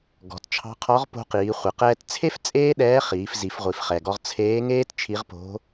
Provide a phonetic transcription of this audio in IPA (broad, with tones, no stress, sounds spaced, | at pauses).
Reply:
ɡ ɔ̤˩˧ t t͡ʃʰ ɑ̤˧˥ qʰ ɔ˧˥ ʁ p o̤˧ q iː˩˧ χʷ e˩ q ɛː˧ t t͡sʰ e˥ f t͡sʼ eː˥ ɗ ɛː˧˥ χ iː˩˧ f z i˩˧ f ʁʷ i˩ f χ ɛ˩ ɡ ɔ˧ ʁ t͡sʰ eː˧˥ ŋ eː˥ t t͡ʃʰ i˧˥ ʁ p o̤˧˥